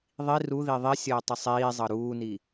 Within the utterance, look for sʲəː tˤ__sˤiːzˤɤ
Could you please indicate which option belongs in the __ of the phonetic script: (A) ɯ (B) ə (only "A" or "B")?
B